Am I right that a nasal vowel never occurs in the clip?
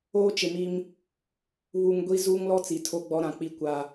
no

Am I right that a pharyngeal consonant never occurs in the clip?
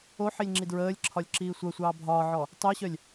no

